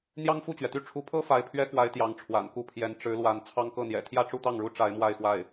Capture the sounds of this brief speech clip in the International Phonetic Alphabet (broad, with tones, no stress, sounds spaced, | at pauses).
n̪ j ɑ˥ ŋ f u˥˩ t͡ɕ ɥ ɛ˩ t̪ y˥˩ ʈ͡ʂʰ u˧˥ pʰ ɤ˥ f a˧˥ ɪ̯ pʰ ɥ ɛ˥ k w a˧˥ ɪ̯ t̪ j ɑ˧˥ ŋ ʈ͡ʂʰ w a̰˨˩ n k u˥˩ pʰ j ɛ˧˥ n ʈ͡ʂ ɻ̩˧˥ l w a˧˥ n t͡sʰ ɑ˥ ŋ k ɤ˥˩ n̪ j ɛ̰˨˩ t̪ʰ j ä˥˧ ʈ͡ʂ u˥˧ t̪ ɑ˥˩ ŋ ɻ u˥ ʈ͡ʂ a˧˥ ɪ̯ m w a˥˧ ɪ̯ x w a˥˩ ɪ̯